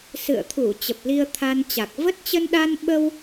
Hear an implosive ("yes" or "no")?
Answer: yes